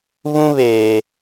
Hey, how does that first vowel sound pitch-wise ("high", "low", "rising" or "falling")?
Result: high